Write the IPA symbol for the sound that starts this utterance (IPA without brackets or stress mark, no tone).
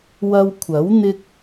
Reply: w